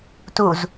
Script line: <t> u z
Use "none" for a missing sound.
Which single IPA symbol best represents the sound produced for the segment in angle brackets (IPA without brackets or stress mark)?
t